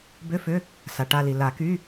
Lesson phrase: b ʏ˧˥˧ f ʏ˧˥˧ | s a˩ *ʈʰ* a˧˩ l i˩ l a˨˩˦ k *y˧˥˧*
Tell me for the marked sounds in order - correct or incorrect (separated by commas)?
incorrect, correct